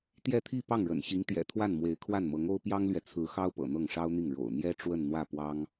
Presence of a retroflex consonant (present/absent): present